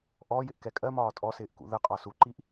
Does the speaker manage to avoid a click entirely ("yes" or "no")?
no